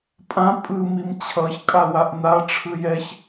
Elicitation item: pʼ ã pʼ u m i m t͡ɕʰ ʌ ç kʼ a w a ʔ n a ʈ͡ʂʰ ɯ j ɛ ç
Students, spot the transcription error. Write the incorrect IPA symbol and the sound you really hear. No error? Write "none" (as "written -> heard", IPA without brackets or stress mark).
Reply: u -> ɯ